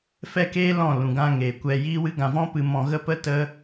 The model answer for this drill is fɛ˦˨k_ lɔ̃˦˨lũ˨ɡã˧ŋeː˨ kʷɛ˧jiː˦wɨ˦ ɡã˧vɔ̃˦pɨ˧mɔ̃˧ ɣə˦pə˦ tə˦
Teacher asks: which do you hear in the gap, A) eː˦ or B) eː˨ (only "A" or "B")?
A